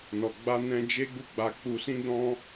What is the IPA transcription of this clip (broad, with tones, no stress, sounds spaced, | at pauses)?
n ɔ˨ ɡ͡b a˧ n ɛ̃˧ d͡ʒ e˦ ɡ͡b u˦˨ ɡ͡b a˧ k͡p u˧ s ĩ˦ d ɔ̃˦